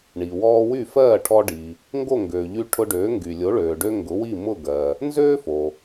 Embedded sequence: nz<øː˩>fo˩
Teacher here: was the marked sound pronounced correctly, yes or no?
no